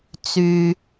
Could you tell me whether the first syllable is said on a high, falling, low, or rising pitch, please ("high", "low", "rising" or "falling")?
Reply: low